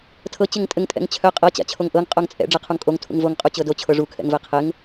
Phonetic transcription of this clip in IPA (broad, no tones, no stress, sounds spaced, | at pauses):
tʰ ɤ t͡ɕ ɘ ŋ tʼ ɘ ŋ tʼ ɛ̰ ŋ t͡ɕʰ œ qʼ ɤ t͡ɕ a̰ t͡ɕʰ o ŋ ʔ ɤ ŋ qʼ o ŋ t͡sʼ ɛ̰ ɖ͡ʐ ɛ qʰ u ŋ kʼ o ŋ tʰ ṵ ŋ v o ŋ qʼ u t͡ɕ ɤ d o t͡ɕʰ ɤ ʐ u kʰ ɛ̰ ŋ v ɛ qʰ ɘ ŋ